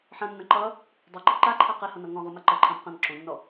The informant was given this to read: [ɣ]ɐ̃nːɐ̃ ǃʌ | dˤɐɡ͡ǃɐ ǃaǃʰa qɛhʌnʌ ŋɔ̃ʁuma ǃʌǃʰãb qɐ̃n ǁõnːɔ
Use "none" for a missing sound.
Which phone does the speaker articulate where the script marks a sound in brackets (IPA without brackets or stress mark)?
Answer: ħ